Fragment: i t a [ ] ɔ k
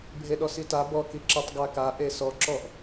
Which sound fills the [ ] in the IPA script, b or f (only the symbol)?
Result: b